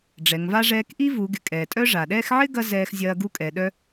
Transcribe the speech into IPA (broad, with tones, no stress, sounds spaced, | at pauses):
ɖ͡ʐ ɛ˩˧ ŋ v a˥ ʐ ɛː˧ k ʔ i˥ v u˩˧ ɡ ɪ˩˧ kʼ ɛː˩ tʼ œ˥ ʐ a˩ ɗ ɛː˥ x ʕ ɪ˥ ɡ ɐ˥ z ɛː˧ x zʲ ɐː˧ ɡ u˥ kʼ ɛ˩˧ ɗ œ˥